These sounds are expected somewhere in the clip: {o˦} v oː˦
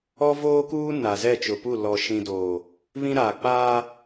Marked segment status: incorrect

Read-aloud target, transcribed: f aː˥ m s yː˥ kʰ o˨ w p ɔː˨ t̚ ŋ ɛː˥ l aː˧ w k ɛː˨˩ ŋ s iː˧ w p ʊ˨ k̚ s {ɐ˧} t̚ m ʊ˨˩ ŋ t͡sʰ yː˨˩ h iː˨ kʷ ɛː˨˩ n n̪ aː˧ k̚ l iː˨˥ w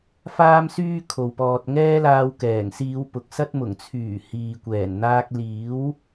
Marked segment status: incorrect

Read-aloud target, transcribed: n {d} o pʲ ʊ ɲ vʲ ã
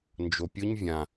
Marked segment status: incorrect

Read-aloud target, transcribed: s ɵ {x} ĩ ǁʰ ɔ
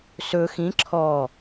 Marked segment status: correct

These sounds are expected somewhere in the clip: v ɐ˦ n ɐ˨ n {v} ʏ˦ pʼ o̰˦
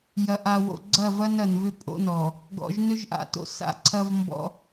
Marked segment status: correct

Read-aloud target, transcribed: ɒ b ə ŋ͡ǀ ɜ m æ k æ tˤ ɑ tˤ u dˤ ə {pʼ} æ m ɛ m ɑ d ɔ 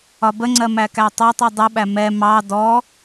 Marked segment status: incorrect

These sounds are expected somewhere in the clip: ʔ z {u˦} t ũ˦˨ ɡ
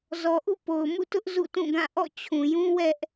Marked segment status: incorrect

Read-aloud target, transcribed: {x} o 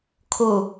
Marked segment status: incorrect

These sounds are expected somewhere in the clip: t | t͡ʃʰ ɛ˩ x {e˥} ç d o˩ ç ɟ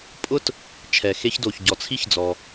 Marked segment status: correct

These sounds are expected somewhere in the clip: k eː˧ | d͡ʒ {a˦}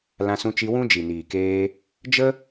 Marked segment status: incorrect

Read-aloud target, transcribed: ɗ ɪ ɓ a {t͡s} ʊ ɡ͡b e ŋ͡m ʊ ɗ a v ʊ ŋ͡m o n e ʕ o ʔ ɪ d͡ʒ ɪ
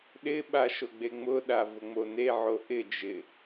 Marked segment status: incorrect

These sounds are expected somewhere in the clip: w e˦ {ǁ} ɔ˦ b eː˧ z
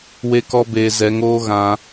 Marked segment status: incorrect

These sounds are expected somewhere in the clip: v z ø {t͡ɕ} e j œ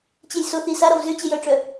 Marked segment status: correct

